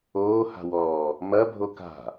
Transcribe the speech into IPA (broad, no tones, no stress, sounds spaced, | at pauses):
oː h a̤ w ɔː | m ɐ bʱ o k a̤